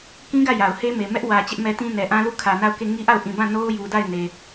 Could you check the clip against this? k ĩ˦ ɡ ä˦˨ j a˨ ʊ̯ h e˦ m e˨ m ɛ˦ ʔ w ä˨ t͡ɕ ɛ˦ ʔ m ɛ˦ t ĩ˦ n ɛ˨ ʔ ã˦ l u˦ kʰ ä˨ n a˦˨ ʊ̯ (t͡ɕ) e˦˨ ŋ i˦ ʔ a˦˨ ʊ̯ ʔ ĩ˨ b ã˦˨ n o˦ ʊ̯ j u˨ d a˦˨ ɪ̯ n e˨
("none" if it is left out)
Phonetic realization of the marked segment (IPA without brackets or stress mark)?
k